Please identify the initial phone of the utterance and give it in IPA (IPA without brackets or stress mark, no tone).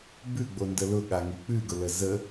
b